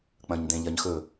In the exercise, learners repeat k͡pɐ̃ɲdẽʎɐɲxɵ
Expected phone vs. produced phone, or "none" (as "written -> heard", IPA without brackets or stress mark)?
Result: none